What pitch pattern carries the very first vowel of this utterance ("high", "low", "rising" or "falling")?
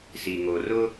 low